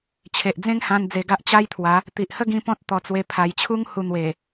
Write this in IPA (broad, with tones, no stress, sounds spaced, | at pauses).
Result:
t͡ɕʰ e˨ ʔ d͡z ẽ˦ ŋ h ã˧ n d͡z e˧ ɡ a˦ ʔ t͡ɕ a˦ j t̪ʰ w a˨˦ | t̪ i˨ ʔ h ə˦ ɡ ĩ˧ p ɔ̃˦ t̚ t̪ ɔ˧ t͡s w e˧ pʰ a˨˩ j t͡ɕʰ u˦ ŋ h u˧ n̪ w e˨˩